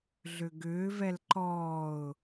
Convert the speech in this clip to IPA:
ɮʏɡʏːvɛl ǃɔːʊ̯

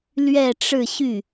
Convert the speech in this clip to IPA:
lɥɛ˥˧ʈ͡ʂɻ̩˥˧ɕy˥˩

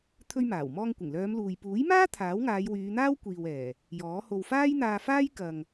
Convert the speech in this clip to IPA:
t̪ʰɵ˧ɥmaː˨˩wmɔː˧ŋ kʷɪ˨˩ŋlœː˨˧mluː˨j puː˨˥jmaː˥ t̪ʰaː˨˥wŋaː˨˧jwyː˨˧n̪aː˥w kʷiː˨wɛː˨˩ | jɔː˨˥ho˧w faː˥jn̪aː˧faː˥j kɐ˨ŋ

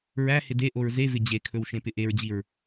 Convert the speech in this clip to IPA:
ɹæ hɪdeʔoɹ zevɪ d͡ʑekʰɵw ʃẽpɪʔeɹd͡ʑiɹ

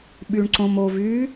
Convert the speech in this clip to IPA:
ɓyɳǀõmo vy

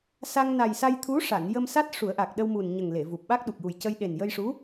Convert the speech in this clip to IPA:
sa˧ŋna˨˩jsa˧jt̪ʰu˧˥ ʂa˨˩˨njə˧m sa˦˥t̚ ʂu˨˩˦ə̯ʔa˨˩k̚ɗə˧wmu˨˩n ɲə˨˩ŋle˨˩˨vu˨˩p̚ɓa˦˥k̚ ɗu˨˩k̚ju˨˩jcə˧j ɗe˨˩njə˧jʂu˧˥

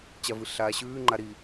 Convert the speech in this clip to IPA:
t͡ɕavɨɬaːɕʉː ŋ͡ǃaɾi

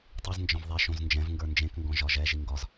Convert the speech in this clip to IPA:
tˤiznd͡ʒɔ̃v ðˤɛʃõz nd͡ʒɛ̃vŋɡə˞ nd͡ʒẽkŋɡɔ̃ ʒɒʒɛʒi ŋɡɒz

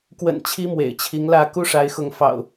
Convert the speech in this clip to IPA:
kwə̰˨˩n t͡ɕʰi˦mwḛ˨˩ɪ̯t͡ɕʰi˨˦ŋlä˥˨ ku˦ʂa˨˦ɪ̯xʊ˨˦ŋ fɑ̰˨˩ʊ̯

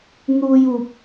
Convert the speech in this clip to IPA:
n̪uː˧juː˨p̚

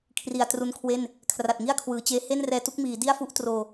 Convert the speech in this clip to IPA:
kʰri˨˩a̯tru˦˥nkʰwe˥˩n | kʰra˨˩t̚ŋi˥˩a̯kʰwɯː˩˦t͡ɕeː˦˥ he˥˩nrɛː˧tu˦˥k̚miː˩˦ di˥˩a̯fu˥˩ʔ troː˧

